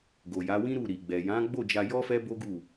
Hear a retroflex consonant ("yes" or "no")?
no